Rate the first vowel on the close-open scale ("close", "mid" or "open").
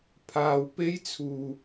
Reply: open